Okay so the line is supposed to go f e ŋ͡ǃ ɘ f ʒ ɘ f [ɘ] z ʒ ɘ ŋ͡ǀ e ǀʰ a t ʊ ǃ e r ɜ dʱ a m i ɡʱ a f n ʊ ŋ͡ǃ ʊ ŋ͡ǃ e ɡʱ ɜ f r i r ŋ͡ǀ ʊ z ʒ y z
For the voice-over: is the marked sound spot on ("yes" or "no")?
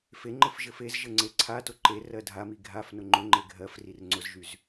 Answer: no